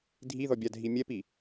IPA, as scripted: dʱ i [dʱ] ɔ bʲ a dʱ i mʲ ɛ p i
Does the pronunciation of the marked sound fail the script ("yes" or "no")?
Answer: yes